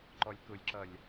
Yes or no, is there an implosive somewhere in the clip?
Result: no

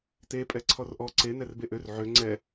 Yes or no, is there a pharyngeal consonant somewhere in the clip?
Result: yes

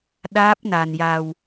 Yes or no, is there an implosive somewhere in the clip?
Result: yes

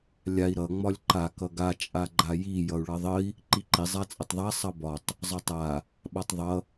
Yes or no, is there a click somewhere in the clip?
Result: yes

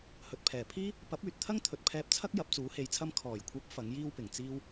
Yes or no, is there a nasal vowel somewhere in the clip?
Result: no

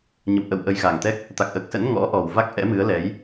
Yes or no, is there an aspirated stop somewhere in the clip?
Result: no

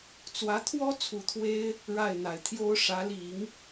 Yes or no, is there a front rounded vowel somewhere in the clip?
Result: no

